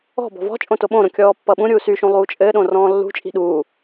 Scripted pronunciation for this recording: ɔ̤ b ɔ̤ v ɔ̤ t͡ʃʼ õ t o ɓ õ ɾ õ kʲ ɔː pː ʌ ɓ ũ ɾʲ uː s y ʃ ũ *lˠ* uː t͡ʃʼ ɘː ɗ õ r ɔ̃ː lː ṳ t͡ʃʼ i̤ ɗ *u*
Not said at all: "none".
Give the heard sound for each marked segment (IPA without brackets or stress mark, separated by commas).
lˠ, uː